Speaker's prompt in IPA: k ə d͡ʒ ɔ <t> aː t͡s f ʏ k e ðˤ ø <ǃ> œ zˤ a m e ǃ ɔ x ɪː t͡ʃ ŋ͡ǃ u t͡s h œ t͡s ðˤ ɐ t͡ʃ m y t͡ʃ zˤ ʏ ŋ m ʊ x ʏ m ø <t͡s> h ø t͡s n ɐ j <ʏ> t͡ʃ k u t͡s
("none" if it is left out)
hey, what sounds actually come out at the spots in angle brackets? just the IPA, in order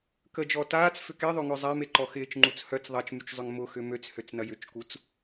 t, ŋ, t͡s, ʏ

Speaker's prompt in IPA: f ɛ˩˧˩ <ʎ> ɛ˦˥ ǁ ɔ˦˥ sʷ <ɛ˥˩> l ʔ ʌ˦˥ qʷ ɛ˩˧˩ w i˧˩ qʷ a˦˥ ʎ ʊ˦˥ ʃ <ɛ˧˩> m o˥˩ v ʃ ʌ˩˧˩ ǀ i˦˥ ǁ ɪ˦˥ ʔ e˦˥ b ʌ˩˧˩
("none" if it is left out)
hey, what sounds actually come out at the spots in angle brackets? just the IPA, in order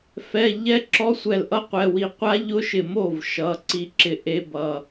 ʎ, ɛ˧˩, ɪ˧˩

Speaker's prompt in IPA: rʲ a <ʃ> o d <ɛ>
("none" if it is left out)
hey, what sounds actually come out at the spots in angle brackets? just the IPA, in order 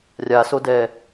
s, ɛ

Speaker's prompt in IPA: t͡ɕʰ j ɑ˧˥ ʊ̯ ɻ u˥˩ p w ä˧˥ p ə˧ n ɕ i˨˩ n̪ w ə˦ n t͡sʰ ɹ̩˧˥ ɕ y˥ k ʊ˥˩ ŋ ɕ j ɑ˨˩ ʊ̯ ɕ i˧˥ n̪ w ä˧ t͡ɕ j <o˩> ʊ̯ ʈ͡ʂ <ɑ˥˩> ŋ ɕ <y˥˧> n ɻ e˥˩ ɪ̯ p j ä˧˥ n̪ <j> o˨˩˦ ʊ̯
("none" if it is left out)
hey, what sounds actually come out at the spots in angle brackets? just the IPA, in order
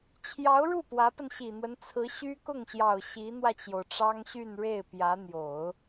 o˩, ɑ˥, y˥˧, j

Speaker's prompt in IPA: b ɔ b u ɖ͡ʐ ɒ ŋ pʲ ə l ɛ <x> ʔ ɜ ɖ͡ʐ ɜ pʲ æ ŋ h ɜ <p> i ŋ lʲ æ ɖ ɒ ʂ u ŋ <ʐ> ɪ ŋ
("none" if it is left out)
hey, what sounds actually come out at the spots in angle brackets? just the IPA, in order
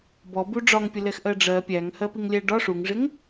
x, p, ʐ

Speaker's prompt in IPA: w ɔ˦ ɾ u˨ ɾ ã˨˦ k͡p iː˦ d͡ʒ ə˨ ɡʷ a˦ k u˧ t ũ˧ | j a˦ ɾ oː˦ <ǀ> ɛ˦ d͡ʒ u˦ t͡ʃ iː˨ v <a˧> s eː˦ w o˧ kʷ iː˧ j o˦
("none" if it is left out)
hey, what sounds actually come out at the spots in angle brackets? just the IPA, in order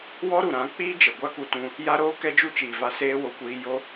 k, a˧

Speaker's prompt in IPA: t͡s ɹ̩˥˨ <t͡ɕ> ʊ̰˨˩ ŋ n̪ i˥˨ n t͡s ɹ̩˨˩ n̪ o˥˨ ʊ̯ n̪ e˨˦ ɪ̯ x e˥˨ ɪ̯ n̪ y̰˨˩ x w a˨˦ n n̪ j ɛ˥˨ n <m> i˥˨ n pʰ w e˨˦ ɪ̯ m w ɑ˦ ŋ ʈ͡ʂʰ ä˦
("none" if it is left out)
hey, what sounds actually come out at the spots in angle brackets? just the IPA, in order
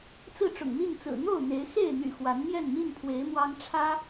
ʈ͡ʂ, m

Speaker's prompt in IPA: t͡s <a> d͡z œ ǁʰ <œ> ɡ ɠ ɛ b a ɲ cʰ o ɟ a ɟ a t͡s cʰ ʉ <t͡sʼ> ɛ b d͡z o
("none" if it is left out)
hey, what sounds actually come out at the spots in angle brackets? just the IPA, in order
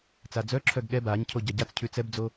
a, œ, t͡s

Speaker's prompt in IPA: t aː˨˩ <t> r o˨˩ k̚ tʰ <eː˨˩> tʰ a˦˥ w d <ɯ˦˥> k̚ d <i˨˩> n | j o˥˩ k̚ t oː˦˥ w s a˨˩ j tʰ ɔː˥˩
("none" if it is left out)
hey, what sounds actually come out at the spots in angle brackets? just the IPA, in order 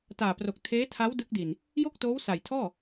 p, eː˦˥, ɯ˦˥, i˨˩

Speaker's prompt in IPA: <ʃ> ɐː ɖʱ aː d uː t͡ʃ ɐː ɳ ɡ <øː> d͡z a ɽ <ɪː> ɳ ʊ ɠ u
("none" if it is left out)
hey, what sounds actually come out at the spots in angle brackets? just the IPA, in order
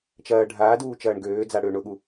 t͡ʃ, øː, ʏː

